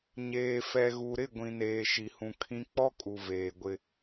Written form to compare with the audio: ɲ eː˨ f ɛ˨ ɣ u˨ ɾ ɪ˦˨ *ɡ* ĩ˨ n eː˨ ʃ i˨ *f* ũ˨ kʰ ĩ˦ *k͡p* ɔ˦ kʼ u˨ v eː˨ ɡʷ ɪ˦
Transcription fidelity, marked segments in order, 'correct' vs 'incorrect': incorrect: ɡʷ, incorrect: h, correct

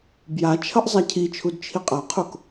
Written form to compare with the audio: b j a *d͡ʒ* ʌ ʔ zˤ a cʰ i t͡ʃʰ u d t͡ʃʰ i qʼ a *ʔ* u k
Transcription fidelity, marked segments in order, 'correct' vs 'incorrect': incorrect: t͡ʃʰ, incorrect: qʰ

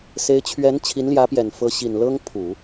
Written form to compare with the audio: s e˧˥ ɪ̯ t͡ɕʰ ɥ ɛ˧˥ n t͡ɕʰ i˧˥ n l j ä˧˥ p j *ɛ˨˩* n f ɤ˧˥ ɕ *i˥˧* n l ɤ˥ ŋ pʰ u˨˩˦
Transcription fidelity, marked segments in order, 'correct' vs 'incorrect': correct, incorrect: i˨˩

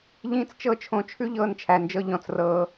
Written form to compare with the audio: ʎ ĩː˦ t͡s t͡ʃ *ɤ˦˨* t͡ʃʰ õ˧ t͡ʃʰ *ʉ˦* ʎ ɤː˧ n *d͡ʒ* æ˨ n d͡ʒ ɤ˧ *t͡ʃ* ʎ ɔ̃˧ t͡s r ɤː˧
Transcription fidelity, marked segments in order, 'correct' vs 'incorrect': correct, correct, incorrect: t͡ʃʰ, incorrect: none

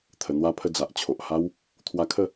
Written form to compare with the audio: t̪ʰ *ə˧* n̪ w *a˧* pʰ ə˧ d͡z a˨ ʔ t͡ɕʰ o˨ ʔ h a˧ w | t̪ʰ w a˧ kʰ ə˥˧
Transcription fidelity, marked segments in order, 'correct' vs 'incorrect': incorrect: ə˨˩, correct

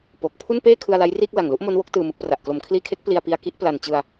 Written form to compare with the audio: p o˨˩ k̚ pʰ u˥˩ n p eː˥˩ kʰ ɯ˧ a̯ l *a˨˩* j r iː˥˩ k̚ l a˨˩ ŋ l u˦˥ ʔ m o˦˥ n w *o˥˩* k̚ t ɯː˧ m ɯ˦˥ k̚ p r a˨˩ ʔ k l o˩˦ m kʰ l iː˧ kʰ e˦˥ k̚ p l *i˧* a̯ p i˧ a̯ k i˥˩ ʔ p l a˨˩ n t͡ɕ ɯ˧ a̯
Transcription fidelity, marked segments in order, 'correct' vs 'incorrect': incorrect: a˦˥, incorrect: o˦˥, correct

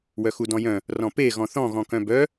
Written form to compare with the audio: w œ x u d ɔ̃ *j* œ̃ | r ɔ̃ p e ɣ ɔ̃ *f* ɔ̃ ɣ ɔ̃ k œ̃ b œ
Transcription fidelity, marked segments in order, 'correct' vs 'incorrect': correct, incorrect: θ

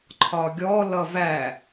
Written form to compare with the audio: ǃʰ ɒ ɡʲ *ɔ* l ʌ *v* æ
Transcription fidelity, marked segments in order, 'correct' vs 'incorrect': correct, correct

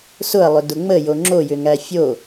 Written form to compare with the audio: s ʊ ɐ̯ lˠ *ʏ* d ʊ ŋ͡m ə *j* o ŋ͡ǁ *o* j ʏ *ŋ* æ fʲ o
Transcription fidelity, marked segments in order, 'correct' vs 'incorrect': correct, correct, correct, correct

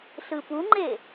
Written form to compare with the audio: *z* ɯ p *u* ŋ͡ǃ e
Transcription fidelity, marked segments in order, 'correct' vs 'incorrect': incorrect: ɬ, correct

